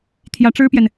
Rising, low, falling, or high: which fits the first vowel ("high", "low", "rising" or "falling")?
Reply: rising